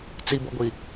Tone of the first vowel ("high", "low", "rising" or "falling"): high